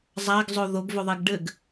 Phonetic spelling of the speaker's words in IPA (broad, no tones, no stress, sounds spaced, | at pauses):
zˤ a ɡ zˤ o ð o ɡ v ɵ ðˤ e ɡ ɖ ɘ ɡ